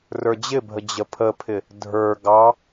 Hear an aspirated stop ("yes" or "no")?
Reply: yes